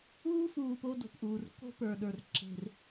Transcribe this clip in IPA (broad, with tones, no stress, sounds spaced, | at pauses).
uː˦ f uː˨ p o˦ d o̤˨ p ʔ uː˨ r k o̤˦ p ə˞˨ ɗ ə˞˨ r ǁ e̤˨ r